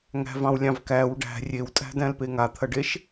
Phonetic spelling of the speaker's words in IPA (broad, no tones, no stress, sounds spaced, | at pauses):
ŋ æ̤ v ɑ̃ w lʲ ɑ̃ v k æ w ɖ æ̤ rʲ e w tʼ æ̤ d æ̃ l p e ŋ a t̪ʰ ɐ ɖ e ʃ